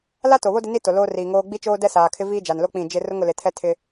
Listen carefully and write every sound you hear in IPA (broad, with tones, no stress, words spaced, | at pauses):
la˦to˨βo˦ dɪ˦ni˦to˨ loː˦riː˨ŋoː˦ ɡ͡bi˦t͡ʃoː˦ dɛ˦saː˨kʰɪ˦ viː˦d͡ʒa˨nlo˦ k͡pĩ˦˨d͡ʒɪ˦ rʊ˦ŋʊ˨lɪ˨ tʰɛ˦tʰɪ˦